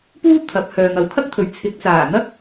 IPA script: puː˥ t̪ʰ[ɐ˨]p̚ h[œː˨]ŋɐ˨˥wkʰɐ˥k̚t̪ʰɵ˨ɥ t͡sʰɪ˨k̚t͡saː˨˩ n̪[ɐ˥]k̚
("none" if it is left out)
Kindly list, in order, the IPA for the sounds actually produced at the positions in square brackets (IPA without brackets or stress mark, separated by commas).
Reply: ɐ˨˥, œː˨, ɐ˥